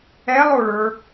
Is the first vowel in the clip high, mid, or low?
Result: mid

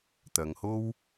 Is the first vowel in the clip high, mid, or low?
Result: low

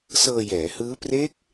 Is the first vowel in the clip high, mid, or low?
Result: mid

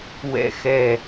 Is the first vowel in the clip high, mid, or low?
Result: mid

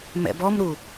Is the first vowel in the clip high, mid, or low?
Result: mid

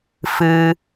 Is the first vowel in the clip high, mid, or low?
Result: high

